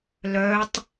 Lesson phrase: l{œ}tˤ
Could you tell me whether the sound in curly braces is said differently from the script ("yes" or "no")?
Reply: no